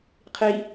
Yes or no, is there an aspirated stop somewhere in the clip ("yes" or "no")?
yes